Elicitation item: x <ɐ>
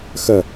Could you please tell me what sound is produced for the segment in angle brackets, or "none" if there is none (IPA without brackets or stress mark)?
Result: ɐ